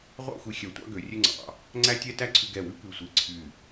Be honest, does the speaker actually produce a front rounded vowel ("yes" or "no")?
yes